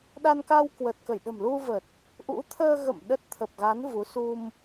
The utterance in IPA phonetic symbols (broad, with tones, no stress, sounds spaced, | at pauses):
ɗ a˧ n k a˧ w k w ə˨˩ t̚ k ə˧˩ j ɗ ə̤˨˩ m l u˧ v ə˨˩ t̚ | ʔ ṵ˧˥ t̪ʰ əː˧ ɣ ə̰˧˨ m ɗ ə˦˥ t̚ t̪ʰ ə˨˩ p̚ ɣ a˨˦ n v u˨˦ s u˧ m